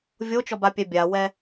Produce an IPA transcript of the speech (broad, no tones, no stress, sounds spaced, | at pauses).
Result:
vʲ o t͡ʃ ɔ b a pʲ ɛ bʲ a w ɛ